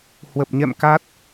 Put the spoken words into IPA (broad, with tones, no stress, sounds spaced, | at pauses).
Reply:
h w ə˨˩ p̚ ɲ ɛ̰˧˨ m k a˦˥ t̚